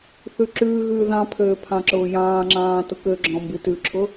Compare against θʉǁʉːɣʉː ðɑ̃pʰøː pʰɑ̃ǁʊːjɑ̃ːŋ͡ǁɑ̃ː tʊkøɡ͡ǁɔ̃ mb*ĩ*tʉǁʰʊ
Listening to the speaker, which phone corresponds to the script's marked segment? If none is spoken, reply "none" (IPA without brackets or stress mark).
i